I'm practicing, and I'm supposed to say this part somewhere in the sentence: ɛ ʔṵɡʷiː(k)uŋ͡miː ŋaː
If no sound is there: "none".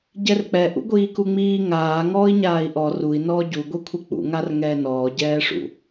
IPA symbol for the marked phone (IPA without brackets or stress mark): k